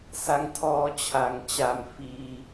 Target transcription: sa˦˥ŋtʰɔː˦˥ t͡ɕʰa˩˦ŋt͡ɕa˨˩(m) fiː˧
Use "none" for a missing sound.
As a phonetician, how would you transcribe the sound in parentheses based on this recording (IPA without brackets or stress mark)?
m